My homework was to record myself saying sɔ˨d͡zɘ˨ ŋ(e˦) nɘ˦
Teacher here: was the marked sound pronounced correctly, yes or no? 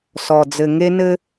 yes